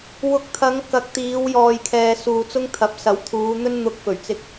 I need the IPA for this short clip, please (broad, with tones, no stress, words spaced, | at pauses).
wʊ˨k̚t̪ʰɐ˨˧ŋ kɐ˨k̚t̪iː˨˧wjɔː˨j kʰɛː˨suː˨t͡sʊ˥ŋt̪ʰɐ˨˥p̚ sɐ˨˥wt̪ʰuː˨˧n̪ɵ˥n n̪ʊ˧k̚fɵ˨˩ɥt͡sɪ˧k̚